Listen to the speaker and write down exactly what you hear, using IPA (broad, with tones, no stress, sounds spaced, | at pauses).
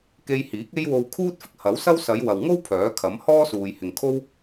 k e˧ j h iː˨˥ k̚ e˥ j w o˧ w kʰ uː˥ t̚ f ɪ˥ k̚ h ɐ˨˥ w s ɐ˥ w s ɐ˨˧ j w ɐ˨ w ŋ o˥ w pʰ œː˨˥ kʰ ɐ˨˥ m h ɔː˥ s uː˨ j h ɪ˨ ŋ kʰ o˥ w